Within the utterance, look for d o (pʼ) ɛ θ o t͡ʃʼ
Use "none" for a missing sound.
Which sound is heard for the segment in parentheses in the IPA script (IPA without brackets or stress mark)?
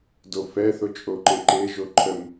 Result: f